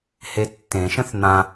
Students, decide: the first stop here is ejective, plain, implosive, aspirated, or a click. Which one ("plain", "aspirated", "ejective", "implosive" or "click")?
plain